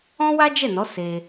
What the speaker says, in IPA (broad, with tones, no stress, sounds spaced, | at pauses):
ɔ̃˦ w a˦ d͡ʒ ɛ˦˨ n ɔ˨˦ s e˧